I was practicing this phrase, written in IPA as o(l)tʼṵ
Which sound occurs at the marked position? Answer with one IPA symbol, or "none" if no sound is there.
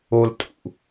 l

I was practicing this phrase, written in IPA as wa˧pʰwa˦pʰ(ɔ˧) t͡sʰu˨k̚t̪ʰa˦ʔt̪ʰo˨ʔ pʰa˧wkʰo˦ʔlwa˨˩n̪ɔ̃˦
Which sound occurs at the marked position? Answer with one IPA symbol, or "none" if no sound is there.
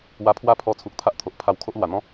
ɔ˧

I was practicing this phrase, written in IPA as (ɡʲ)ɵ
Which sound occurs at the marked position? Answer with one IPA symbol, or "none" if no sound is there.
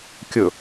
kʲ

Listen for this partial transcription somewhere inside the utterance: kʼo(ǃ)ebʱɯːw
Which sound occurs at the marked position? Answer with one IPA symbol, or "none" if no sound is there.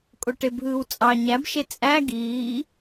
ʈ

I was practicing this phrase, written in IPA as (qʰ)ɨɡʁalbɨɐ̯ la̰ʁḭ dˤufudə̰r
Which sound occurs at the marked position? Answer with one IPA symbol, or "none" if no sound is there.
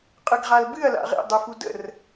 qʼ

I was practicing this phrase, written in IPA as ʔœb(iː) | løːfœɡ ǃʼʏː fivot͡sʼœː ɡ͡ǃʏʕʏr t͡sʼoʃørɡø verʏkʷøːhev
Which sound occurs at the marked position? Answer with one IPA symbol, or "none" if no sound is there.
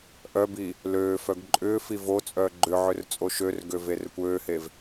iː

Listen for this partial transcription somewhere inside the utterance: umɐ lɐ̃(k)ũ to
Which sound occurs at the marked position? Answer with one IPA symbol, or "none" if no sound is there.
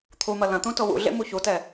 t̪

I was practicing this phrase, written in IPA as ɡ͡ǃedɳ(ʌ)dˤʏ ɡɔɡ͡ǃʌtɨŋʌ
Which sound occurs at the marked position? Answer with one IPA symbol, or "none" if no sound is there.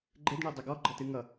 ə˞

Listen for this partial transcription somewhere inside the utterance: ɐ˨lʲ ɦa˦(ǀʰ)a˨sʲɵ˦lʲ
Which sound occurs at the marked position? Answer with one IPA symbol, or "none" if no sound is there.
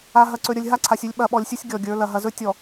ǀʰ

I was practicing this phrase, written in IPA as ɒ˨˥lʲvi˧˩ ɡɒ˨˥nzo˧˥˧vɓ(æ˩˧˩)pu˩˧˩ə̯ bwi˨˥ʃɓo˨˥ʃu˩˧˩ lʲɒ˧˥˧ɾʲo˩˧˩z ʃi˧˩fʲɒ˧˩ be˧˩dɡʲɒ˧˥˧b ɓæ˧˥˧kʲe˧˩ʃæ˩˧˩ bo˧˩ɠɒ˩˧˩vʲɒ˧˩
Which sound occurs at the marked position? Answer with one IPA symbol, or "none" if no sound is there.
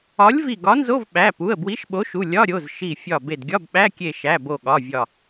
æ˩˧˩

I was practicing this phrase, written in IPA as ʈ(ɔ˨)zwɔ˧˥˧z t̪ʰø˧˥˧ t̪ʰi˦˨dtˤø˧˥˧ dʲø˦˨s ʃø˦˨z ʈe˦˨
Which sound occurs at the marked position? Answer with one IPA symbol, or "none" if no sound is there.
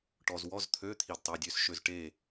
ɔ˨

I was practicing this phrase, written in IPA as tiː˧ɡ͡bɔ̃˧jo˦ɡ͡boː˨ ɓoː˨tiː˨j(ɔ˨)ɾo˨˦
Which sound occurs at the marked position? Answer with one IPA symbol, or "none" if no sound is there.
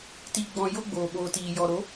ɔ˨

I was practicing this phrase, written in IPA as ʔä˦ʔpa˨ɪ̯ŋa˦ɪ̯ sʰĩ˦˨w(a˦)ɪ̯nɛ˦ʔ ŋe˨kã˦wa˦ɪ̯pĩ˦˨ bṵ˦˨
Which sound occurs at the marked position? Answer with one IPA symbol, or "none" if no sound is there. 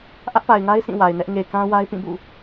a˨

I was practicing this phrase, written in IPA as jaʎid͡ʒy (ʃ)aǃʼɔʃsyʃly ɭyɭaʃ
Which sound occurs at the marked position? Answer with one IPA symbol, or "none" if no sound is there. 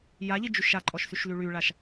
ʃ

